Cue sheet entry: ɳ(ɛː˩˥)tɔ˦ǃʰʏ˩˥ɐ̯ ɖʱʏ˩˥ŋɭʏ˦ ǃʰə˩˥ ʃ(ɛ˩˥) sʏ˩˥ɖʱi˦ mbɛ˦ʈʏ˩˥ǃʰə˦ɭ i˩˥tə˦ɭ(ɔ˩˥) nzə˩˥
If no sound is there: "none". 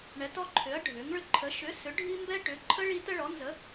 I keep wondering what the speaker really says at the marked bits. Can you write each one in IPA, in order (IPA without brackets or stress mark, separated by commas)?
ɛ˩˥, ʏ˩˥, ɔ˩˥